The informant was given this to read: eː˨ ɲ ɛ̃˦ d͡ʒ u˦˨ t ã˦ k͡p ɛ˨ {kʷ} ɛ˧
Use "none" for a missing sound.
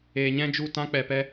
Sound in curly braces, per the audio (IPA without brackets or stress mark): p